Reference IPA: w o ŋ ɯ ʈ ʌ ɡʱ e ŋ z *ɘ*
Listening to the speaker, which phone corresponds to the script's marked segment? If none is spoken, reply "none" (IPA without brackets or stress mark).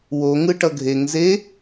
e